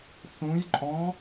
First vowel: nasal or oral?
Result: nasal